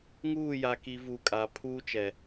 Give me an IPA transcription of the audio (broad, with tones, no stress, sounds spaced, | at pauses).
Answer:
ŋ uː˦˨ j a˨ k i˨ v u˨ kʼ a˨ pʰ uː˦ t͡ʃ ɛ˨